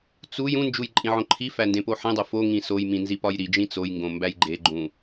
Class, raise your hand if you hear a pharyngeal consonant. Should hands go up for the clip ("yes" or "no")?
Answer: yes